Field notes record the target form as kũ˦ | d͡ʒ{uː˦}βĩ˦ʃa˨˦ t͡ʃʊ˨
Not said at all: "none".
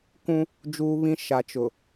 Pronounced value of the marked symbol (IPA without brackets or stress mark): uː˦